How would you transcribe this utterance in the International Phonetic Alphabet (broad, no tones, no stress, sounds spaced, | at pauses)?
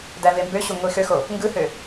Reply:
d æ v e m b ø ɕ u ŋʷ i x ø x o | ŋ ɡ ɯ h ø